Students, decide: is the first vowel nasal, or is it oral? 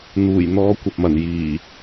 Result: oral